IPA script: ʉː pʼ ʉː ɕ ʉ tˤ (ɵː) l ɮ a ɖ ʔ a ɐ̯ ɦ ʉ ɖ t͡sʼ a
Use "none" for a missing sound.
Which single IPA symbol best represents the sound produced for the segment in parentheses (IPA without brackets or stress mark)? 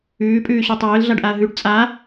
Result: ɵː